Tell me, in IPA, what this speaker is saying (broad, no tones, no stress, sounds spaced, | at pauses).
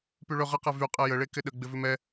p y ɭ ɵ ʁ ə q ɛ v y qʼ ɛ j ə ɭ e k ɪ ɗ ə ɡ͡b ɪ v ʉ m ɛ